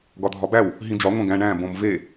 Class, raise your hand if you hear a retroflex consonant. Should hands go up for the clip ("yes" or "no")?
yes